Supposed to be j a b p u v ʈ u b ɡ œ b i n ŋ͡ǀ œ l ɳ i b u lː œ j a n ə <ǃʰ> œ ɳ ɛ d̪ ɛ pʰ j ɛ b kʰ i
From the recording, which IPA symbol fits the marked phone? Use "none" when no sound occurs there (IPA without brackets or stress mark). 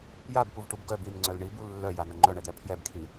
ŋ͡ǃ